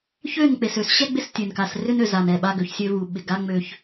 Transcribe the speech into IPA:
çø˦˨nk͡pe˨s ø˨sɕɛ˦ ɡ͡bɪ˦stʲø˨nka˨s rʏ˦nø˨za˨n ɛ˦˨ɓa˦ɡø˨˦çsʲø˦ vu˨ɓɪ˨ɡa˦ ŋ͡mø˦ç

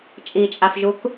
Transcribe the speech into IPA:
t͡ʃʼit͡ʃʼafʒuk

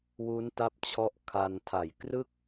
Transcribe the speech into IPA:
wu˦˥nta˦˥p̚t͡ɕʰɔ˦˥ʔ kʰa˧n tʰa˨˩j krɯ˥˩k̚

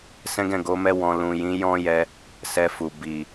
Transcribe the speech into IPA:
sɛ̃˦ɡɛ̃˦˨ɡo˨˦mɛ˦ wɔ̃˧ lũ˨jĩ˨˦ jɔ̃˦jɛ˧ | sɛ˧fu˨ bi˨

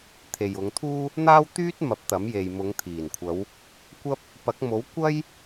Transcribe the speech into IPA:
t̪ʰe˨jʊ˨˧ŋt̪ʰuː˥ | n̪aː˥wt̪yː˥t̚ mɐ˨˥p̚t̪ɐ˨˥mje˨j mʊ˨˧ŋt̪ʰiː˨˩nkʷʰɐ˨˧w | kʷɐ˥p̚ | pɐ˨˥k̚mo˨˥w kʷɐ˥j

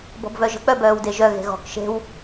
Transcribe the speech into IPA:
bɔ̤bvœʒə̤ k͡pœbœːwdeʒœ ɣe̤ɣɔ̤k ʃe̤w

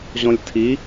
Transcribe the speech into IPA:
ʑɔ̃lʲtʰi

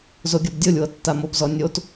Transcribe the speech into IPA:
zoɡʲɔbdʲolʲwɤ tːamobzɔ nʲot

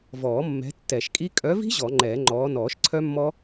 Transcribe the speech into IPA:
vɔː˨˩˦mːɛ̤˨˦ tːɛ˨˩ʃkʼi˦˥ kʼœ˨˦vi̤˦˥ ʑɔ˨˩˦ŋ͡ǃɛː˨˩˦ŋ͡ǃɔː˨˦ nɔː˨˩˦ʃǀʰœ˦˥mːɔ˦˥

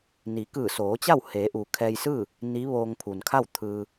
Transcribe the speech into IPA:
ni˩˧kɯː˧˩soː˩˧ t͡ɕa˥˨wheː˩˧ʔu˩ kʰɛː˧jsɯː˥˨ | ni˧˥ ʋoː˧ŋpʰu˩nkʰa˥˨w t̪ʰɯː˧

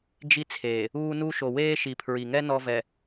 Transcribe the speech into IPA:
d͡ʒi˦t͡sʰeː˨ | uː˦nu˦ ʃo˨weː˦ ʃi˨pʰɹi˨ŋɛ˦ nɔ˦vɛ˨

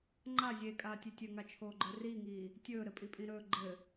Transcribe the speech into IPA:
ŋ͡ǃa zʲekʼaːtʲe tʲɘŋat͡ʃʰoːɡ͡ǃə˞ riːŋiː | tʲɵːɾɘpʼipʼĩ ɾɵː ɡ͡ǃɘ

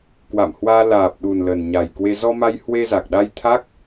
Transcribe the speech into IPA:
kwa̰˧˨mhwaː˧ laː˨˩p̚ɗu˨˩n lə˨˩nɲa˨˩jkwe˧ zɔ˧ma˧j hwe˧za˨˩k̚ɗa˧j t̪ʰa˦˥k̚

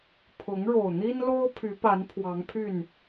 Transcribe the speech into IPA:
pʰʊ˨˦ŋɻo˨˩ʊ̯n̪i˦nlo˦ʊ̯ pʰy˨˦pa˨˦n pʰwɑ˨˦ŋpʰy˥˨n

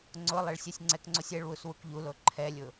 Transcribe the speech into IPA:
ŋ͡ǀʊ lˠeɭsʲɛsʲŋ͡ǀɛkŋ͡ǀosʲ ɛɭwus wukʎulo ǃʰɛlʲʊ

